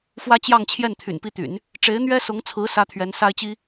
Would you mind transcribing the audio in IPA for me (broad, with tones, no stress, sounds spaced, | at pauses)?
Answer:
f w ä˥ t͡ɕ j ɑ˥˧ ŋ t͡ɕʰ j ɛ˥˩ n t̪ʰ y̰˨˩ n p i˥˩ t̪ y̰˨˩˦ n | ʈ͡ʂ e˧˥ ɪ̯ n̪ ɥ ɛ˥ s ʊ˧˥ ŋ t͡sʰ ɹ̩˧˥ s ä˥ t̪ʰ ɥ ɛ˧˥ n s a˥ ɪ̯ t͡ɕ i˥